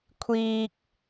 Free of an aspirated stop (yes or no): no